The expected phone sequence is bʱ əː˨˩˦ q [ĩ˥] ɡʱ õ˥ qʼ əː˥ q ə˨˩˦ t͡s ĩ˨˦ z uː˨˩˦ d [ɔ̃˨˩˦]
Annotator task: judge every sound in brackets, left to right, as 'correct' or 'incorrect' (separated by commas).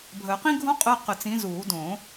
correct, incorrect